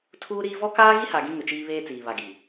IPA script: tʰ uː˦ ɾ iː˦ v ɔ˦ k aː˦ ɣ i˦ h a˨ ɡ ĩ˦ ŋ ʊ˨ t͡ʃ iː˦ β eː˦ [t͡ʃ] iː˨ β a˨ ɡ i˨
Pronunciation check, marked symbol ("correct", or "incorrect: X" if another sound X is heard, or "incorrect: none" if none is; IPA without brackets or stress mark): incorrect: t͡s